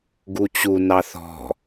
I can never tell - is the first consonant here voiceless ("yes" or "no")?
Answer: no